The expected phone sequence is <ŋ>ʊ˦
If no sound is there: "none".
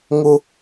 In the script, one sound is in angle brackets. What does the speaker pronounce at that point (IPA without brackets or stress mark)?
ŋ